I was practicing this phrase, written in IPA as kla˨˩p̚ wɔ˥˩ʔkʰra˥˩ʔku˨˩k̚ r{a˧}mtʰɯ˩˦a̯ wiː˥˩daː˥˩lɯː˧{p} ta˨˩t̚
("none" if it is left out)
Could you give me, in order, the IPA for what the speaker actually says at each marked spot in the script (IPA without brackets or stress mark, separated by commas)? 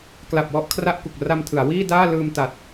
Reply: a˧, m